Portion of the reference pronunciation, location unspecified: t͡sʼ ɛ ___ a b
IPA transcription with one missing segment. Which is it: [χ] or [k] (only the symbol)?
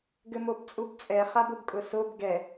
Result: χ